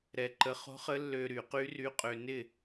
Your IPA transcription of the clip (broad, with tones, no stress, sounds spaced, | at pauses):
ɾ ɛ˧ ǃ ə˧˥ χ o̤˧˥ χ ə˧˥ lː ø˧ ɾ y˧˩˧ q y˧˥ r y˧˥ qʼ ø˧ n ɪ˥˨